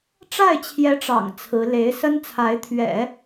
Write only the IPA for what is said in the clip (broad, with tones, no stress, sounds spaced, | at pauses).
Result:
ʈ͡ʂ a˥˩ ɪ̯ t͡ɕʰ j ɛ˧˥ ʈ͡ʂ ɑ̰˨˩ ŋ t͡sʰ ɹ̩˧˥ l e˧˥ ɪ̯ s ə˥ n t͡sʰ a˧˥ ɪ̯ t̪ʰ ɥ ɛ̰˨˩˦